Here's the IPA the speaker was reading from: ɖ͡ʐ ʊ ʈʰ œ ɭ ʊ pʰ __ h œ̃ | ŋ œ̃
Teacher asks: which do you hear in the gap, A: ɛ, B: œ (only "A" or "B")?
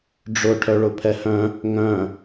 A